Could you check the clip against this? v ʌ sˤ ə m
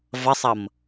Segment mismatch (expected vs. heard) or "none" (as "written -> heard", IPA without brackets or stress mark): ə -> ʌ